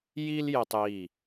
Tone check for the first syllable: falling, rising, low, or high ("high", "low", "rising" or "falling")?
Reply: high